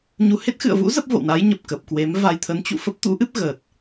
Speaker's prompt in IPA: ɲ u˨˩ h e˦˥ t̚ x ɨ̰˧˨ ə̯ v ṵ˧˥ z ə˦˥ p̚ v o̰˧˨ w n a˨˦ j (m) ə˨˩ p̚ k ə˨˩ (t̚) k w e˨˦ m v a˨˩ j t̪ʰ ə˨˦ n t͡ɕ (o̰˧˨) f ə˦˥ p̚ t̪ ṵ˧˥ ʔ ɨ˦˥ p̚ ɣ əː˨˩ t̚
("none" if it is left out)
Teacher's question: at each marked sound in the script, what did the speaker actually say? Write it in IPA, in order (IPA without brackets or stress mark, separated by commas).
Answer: ɲ, p̚, ṵ˧˨